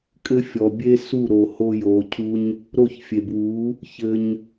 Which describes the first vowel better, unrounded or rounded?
unrounded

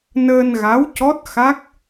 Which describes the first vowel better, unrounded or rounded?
unrounded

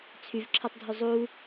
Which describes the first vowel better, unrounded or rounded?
rounded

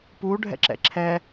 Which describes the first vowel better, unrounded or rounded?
rounded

